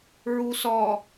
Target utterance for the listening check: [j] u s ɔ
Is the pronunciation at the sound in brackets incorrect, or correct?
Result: incorrect